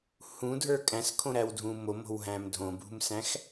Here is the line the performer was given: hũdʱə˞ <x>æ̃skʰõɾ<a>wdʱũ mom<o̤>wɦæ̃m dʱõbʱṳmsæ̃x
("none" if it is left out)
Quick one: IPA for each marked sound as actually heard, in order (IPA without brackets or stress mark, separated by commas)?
kʼ, æ, o̤